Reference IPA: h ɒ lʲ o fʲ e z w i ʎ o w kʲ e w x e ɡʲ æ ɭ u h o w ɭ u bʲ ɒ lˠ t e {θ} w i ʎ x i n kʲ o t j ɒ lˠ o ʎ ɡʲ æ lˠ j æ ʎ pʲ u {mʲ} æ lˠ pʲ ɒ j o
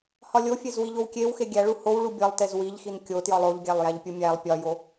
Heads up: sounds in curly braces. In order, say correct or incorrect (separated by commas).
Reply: incorrect, correct